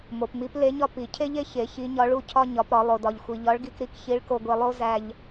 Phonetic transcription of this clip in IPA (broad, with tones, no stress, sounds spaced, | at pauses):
m o˩ p m i˧˥ p l e˧˥ ɲ ɒ˥ p i˩˧ cʰ e˥ ʎ e˥ ç e˩˧ ç i˧˥ ɲ ɒ˧˥ ɭ u˥ cʰ ɒ˥ ɲ ɒ˩˧ p ɾ ɒ˩˧ lˠ o˩ d ɒ˩ ʎ xʷ i˩ ʎ ɒ˧˥ ɭ ɡ i˧ k ɾ i˧ k ç i˧˥ ɭ k o˧ ɡʷ e˧ lˠ o˥ z æ˧ ʎ